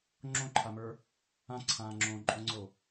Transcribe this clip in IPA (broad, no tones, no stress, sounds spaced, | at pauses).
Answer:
ŋ͡ǁ õ ǃʰ a m ə˞ | ã ǀʰ ãː ŋ͡ǁ õː ǃʼ õ ŋ͡ǀ o